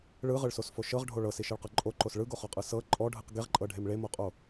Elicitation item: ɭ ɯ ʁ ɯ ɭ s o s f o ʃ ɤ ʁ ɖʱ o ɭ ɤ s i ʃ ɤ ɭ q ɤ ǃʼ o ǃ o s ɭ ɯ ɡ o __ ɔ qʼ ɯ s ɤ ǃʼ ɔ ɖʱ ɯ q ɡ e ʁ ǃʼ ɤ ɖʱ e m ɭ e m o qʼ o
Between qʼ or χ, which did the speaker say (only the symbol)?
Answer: χ